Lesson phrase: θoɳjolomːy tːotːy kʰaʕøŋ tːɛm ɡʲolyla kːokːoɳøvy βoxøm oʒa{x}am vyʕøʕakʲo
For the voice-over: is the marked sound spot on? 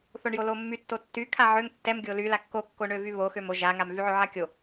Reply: no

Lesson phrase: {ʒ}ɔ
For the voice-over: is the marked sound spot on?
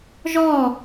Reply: yes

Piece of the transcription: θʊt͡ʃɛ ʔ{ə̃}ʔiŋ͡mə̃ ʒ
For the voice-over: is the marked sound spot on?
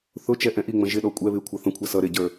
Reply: no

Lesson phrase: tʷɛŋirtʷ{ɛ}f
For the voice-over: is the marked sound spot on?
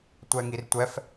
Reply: yes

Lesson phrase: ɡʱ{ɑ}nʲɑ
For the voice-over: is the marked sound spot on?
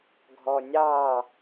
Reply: no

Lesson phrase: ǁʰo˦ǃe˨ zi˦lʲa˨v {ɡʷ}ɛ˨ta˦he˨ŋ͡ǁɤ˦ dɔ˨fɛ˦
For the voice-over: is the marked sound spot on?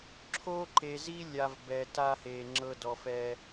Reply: no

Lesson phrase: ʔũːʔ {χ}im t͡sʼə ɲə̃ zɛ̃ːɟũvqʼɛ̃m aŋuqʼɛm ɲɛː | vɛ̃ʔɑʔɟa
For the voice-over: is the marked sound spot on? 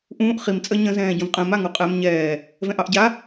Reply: yes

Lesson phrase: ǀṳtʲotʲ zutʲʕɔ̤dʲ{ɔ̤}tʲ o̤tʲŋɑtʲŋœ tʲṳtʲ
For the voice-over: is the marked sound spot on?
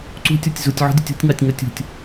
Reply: no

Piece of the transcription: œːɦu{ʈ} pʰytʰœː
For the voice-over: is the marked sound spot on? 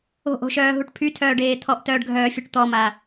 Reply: yes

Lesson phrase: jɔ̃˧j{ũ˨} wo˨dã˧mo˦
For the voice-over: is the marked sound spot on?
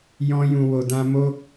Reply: yes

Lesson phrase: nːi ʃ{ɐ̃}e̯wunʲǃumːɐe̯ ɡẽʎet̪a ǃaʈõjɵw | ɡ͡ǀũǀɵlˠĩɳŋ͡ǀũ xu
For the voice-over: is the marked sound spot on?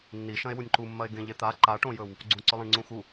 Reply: yes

